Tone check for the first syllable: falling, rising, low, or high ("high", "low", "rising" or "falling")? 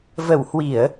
low